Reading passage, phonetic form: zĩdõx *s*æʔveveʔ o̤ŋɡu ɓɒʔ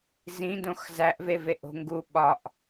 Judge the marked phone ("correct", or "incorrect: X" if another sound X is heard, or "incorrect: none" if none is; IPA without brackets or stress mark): incorrect: z